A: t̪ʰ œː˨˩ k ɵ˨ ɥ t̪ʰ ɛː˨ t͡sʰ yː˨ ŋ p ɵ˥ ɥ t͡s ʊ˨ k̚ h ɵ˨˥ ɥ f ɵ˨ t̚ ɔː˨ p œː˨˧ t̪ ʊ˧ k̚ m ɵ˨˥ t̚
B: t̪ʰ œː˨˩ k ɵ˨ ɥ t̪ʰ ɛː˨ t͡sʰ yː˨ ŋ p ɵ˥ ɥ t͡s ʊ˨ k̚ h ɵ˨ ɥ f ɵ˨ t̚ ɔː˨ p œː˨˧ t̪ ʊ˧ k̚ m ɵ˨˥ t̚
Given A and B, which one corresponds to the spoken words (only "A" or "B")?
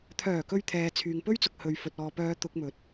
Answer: B